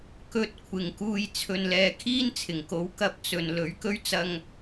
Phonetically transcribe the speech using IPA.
k ɵ˧ t̚ kʷʰ ɪ˨ ŋ k uː˧ j t͡sʰ ɵ˨ n l ɛː˨ kʰ iː˥ n t͡sʰ ɪ˨˩ ŋ k o˨˥ w k ɐ˧ p̚ t͡s ɵ˨ n l ɵ˨˥ ɥ k ɵ˥ ɥ t͡s ɐ˧ ŋ

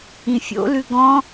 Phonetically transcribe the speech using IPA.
ĩ fʲ o̰ l ʉ ɡ ɔ̃

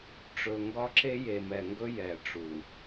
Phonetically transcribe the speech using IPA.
ʈ͡ʂ ɵ˨ ŋ ɡ ɒ˦ ǁ e˦ j e˨ m ɛ˨ ŋ ɡ ɵ˦ j ɛ˨ ʈ͡ʂ u˨

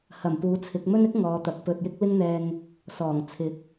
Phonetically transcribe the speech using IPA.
h ɐ˨˩ m p uː˨˥ t͡sʰ ɪ˨˥ k̚ m ɵ˥ n ɪ˥ k̚ ŋ ɔː˨˧ t̪ ɐ˨˥ k̚ p ɵ˧ t̚ j ɪ˥ k̚ l ɪ˥ ŋ n̪ ɛː˧ ŋ | s ɔː˨˩ ŋ t͡sʰ ɪ˨˥ k̚

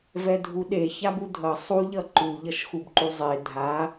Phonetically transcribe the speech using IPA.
v ɛ dʱ u ɗ e ç a b u dʱ ʌ sˤ u ʎ ʌ ǃ u ʎ ʌ ʃ x u b ǃ u zˤ e dʱ a

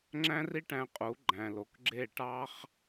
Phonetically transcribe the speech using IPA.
ŋ͡ǁ æ̃˦ r i˦ ʈ æ̃˧ qʼ u˨˦ ɡ͡ǃ æ̃˨ l o˨ k ɡ͡ǁ e˦˨ ʈ ɑ˦ χ

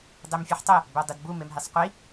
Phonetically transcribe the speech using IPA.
dˤ e m fʲ ɘ ħ tˤ ɘ | b œ dˤ i d b u m e m ɦ e sˤ qʷ i

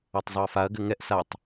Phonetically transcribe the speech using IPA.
a tˤ zˤ o ɐ̯ f a ɐ̯ ɡ ɘ ŋ ɛ ʔ s a tˤ

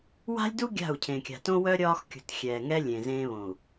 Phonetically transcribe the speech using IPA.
w a̤˦ lʲ d u˦ ɡʲ a̤˦˨ u̯ cʰ ẽ˨ kʲ a̤˨ t õ˦ w œ˦ ɾʲ ɒː˦ x kʲ ṳ˨ t xʲ ɛː˨ ŋ ɛ˦ lʲ ẽ˨ z ẽː˦ β õ˨ u̯

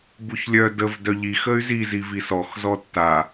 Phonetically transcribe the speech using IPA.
b u ç lʲ œ d ə v d œ ʎ i x ə y̯ z i z i v i s ɔ x z ɔ tː a

